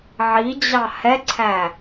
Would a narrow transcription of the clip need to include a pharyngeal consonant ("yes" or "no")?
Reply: yes